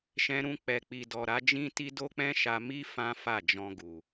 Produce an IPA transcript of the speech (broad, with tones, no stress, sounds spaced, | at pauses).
ʃ ɛ̃˧ ɾ ũ˧ k͡p ɛ˨ k͡p i˨ d ɔ˨ ɾ a˨˦ d͡ʒ ĩ˦ t i˦ d o˦ k͡p ɛ̃˦ ʃ a˧ m i˦ f ã˦ f a˦˨ d͡ʒ ɔ̃˧ ɡ u˨